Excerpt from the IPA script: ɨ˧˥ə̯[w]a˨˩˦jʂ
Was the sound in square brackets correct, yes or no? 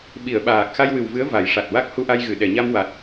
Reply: no